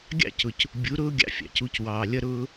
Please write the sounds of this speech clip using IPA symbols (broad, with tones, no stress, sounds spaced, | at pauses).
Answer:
ɡʲ ɑ̰˦˨ c ʊ˨ c | bʲ u˨˦ ɾ ʊː˦ ɡʲ ɑ̰˧ fʲ ɑ̰˨ c u˧ c w ɑː˨ lʲ ʌ˦ ɾ ʊː˧